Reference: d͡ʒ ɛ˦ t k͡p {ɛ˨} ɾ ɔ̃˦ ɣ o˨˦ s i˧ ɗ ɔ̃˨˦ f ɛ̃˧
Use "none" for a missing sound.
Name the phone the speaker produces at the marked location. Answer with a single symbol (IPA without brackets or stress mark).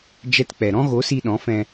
ɛ˧